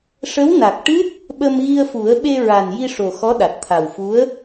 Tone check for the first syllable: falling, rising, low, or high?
rising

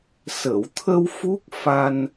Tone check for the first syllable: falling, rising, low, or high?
low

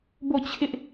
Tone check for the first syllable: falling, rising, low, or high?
falling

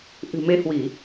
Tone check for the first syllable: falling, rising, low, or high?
low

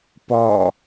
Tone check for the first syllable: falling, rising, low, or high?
falling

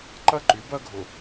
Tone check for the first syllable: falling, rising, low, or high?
falling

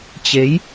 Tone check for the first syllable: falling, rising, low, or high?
rising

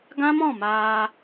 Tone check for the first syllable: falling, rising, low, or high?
high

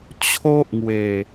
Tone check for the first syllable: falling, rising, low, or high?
high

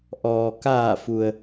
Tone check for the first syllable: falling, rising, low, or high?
low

